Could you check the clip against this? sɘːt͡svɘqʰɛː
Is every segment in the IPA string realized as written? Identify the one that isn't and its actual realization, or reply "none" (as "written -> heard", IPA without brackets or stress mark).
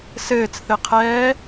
v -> θ